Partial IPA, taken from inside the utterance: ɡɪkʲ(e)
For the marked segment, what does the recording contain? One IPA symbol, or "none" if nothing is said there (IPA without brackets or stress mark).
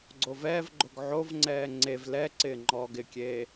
eː